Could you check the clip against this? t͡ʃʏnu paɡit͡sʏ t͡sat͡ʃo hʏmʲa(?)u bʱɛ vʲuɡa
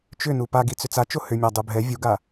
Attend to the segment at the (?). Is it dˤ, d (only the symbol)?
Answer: dˤ